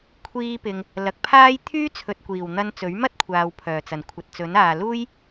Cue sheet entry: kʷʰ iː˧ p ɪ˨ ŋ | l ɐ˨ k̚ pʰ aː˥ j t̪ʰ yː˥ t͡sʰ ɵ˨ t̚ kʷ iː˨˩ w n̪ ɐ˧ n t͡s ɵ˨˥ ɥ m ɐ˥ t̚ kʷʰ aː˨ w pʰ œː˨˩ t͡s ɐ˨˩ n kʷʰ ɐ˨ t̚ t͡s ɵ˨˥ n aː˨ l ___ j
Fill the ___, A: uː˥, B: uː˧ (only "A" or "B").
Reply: A